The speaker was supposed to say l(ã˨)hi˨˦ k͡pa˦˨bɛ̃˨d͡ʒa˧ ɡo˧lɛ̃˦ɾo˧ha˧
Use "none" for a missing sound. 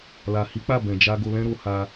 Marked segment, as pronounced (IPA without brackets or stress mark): a˨